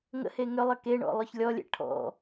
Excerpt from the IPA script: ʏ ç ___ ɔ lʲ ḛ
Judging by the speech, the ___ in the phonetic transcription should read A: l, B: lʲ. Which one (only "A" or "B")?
B